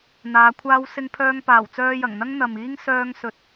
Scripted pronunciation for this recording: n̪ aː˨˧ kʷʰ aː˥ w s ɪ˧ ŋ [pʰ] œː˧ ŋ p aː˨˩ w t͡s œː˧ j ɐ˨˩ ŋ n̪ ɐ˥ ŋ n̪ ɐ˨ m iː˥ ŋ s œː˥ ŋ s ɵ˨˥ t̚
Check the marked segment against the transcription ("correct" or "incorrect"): correct